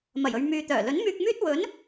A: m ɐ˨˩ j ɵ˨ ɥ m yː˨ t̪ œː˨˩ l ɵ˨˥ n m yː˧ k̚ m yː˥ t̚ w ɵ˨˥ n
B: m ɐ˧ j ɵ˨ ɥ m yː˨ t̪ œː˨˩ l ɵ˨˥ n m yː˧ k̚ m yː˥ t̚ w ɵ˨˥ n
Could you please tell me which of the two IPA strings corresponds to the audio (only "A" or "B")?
A